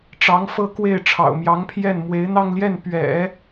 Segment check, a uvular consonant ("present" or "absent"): absent